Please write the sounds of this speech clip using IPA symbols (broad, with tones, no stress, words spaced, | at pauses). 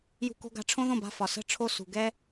jṳ˧ko̤˧ ɡa̤˧ʈ͡ʂʰõ˦ðõ˦˨ba̤˦˨ fɒ˨sə̤˦˨ ʈ͡ʂʰo˦sṳ˨ ɡɛ˦